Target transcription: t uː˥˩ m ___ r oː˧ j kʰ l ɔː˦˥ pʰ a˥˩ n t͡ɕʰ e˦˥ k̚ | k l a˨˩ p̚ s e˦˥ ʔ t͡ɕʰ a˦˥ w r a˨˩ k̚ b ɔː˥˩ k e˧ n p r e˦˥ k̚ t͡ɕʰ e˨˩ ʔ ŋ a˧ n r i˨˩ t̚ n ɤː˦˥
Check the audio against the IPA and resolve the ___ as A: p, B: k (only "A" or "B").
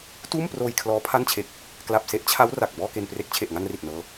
A